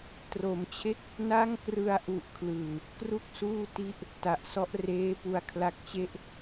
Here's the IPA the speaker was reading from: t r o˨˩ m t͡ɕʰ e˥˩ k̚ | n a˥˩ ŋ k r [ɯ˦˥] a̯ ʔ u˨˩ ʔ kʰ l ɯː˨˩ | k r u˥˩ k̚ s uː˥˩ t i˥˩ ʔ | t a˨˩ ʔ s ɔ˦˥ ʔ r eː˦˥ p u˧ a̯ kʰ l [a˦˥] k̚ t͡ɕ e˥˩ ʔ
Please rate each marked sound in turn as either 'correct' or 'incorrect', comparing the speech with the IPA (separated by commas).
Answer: incorrect, correct